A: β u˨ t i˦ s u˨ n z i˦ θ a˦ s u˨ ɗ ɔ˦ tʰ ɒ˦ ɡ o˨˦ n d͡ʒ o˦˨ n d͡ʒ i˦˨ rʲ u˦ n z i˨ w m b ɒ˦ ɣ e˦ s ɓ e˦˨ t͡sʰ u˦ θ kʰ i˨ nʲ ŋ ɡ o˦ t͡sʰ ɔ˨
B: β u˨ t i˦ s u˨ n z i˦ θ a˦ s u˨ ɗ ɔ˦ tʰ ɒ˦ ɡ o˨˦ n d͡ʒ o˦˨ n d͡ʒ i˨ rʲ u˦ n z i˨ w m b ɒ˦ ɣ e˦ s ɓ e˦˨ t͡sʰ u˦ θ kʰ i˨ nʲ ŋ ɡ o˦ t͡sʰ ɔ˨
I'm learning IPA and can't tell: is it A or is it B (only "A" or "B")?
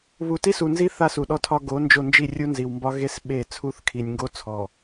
A